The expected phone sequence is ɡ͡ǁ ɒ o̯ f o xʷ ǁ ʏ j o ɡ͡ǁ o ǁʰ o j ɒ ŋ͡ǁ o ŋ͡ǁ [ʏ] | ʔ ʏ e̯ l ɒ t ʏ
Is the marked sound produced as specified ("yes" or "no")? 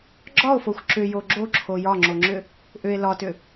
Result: yes